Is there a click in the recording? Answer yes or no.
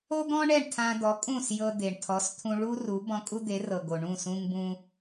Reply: no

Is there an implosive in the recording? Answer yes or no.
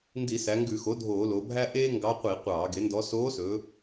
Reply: no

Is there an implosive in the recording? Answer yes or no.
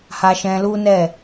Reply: no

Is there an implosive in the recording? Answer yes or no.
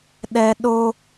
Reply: yes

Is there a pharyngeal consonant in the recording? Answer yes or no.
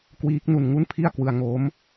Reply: no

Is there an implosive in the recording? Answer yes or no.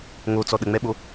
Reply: yes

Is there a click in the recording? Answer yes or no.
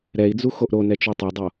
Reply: no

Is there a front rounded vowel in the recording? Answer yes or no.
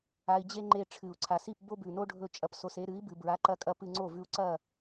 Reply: no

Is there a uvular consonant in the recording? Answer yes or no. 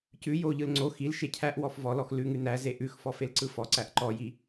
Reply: no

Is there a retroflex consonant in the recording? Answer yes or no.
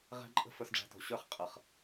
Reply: yes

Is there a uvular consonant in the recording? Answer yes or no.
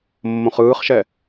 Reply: yes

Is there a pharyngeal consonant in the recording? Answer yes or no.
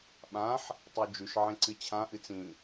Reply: yes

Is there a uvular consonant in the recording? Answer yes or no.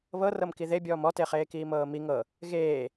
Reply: yes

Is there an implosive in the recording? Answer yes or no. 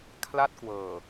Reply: no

